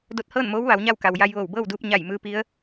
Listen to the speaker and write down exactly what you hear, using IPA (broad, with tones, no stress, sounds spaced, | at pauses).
d o˧ t̚ h ɤː˥˨ n m oː˧˥ w ʋ a˩˧ w ɲ a˥˨ w k a˩ w j a˧ j ʋ oː˧˩ w b ɤː˥˨ w d uː˧ p̚ ɲ a˧˩ j m ɯː˧˥ p i˧˥ ə̯